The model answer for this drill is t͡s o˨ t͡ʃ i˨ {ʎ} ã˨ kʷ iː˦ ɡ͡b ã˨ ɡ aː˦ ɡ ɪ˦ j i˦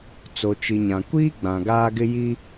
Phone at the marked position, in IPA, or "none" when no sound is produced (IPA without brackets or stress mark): ɲ